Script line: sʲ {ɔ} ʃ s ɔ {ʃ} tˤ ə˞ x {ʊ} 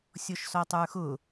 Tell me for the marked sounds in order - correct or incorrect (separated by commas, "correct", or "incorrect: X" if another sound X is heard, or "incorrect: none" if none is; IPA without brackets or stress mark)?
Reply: correct, incorrect: none, correct